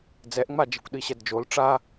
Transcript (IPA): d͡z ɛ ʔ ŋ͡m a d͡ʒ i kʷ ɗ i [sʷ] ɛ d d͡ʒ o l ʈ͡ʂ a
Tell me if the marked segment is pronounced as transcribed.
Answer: no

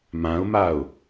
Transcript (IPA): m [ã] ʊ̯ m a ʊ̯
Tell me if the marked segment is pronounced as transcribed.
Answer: yes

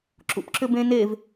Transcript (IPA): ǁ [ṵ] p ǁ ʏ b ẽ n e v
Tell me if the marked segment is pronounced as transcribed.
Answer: yes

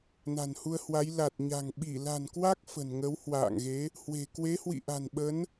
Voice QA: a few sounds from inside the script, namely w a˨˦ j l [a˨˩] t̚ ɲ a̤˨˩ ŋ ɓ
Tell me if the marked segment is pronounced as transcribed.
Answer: yes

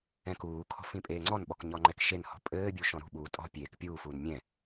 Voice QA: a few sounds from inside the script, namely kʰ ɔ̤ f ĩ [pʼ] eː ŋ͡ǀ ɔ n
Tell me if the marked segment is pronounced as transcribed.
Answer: yes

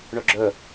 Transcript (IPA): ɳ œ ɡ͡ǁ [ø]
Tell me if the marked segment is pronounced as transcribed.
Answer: no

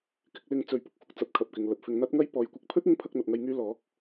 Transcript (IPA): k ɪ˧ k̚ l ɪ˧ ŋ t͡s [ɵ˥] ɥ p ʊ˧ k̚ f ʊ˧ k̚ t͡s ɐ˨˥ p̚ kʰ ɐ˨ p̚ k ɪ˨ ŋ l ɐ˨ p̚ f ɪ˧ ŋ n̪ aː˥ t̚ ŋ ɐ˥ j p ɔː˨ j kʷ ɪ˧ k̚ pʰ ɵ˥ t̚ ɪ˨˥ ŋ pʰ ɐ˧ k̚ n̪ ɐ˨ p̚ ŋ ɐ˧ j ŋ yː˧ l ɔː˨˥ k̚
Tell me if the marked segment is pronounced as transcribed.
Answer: no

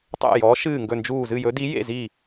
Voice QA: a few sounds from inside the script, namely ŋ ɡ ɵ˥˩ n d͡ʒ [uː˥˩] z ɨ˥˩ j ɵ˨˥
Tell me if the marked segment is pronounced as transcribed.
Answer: yes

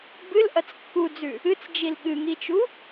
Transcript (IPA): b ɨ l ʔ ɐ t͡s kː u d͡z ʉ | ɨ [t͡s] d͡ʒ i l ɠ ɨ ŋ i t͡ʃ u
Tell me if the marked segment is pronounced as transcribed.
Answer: yes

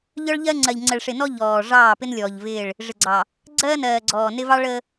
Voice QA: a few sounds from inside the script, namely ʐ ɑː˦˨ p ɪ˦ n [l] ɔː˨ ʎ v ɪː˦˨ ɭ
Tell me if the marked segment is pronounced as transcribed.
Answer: no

